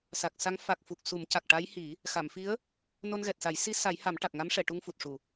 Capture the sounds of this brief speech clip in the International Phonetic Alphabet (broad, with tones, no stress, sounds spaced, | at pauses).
s a˨˩ k̚ s a˧˥ ŋ f a˨˩ k̚ f u˨˩ k̚ s u˨˩˦ m c a˨˩ k̚ ʈ a˧˥ j h i˨˩˦ | x a˨˩˨ m f i˧˥ ə̯ | n o˧ n ɣ ɛ˨˩ t̚ s a˨˩˦ j s i˧˥ s a˨˩˦ j h a˨˩˦ m ʈ a˨˩ k̚ ŋ a˧˥ m ʂ ɛ˨˩˨ ʈ u˧ ŋ f u˨˩ t̚ ʂ u˨˩˨